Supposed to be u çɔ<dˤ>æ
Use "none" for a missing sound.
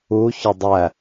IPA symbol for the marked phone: dˤ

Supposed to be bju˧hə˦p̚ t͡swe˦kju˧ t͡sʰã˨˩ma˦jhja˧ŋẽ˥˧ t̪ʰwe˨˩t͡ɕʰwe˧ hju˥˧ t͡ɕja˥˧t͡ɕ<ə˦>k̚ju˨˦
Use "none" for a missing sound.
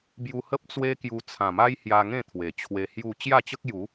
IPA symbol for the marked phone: ə˦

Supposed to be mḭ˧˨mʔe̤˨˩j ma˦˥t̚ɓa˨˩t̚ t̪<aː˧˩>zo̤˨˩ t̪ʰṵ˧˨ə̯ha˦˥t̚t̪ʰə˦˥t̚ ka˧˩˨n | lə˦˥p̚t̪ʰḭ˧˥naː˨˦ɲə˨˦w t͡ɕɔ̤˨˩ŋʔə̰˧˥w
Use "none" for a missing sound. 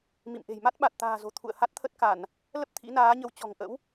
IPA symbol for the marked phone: a̤ː˨˩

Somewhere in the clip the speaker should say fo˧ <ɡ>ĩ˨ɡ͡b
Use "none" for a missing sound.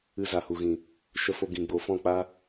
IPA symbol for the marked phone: ɡ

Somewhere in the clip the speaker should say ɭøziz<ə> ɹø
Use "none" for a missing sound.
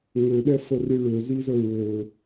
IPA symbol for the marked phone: ə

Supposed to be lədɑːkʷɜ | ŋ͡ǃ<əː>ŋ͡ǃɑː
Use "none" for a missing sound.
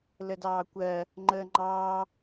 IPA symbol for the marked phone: əː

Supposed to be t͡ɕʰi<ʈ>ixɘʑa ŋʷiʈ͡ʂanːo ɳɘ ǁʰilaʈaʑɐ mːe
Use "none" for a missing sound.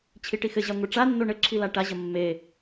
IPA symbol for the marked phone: ʈ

